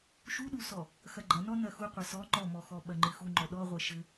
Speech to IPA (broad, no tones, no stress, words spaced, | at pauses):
ʃuɗusɔ | xɐɡ͡ǃɐnɔ nɐxu qʷɐsɔ ŋ͡ǃɔmɔxɔ ɓɐŋ͡ǃɨxu ŋ͡ǃɔɗɔʁʷɛ ʃɘ